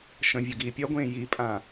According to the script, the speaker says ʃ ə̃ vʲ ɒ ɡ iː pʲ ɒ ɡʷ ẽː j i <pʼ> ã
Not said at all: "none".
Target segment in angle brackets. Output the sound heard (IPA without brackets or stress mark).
pʼ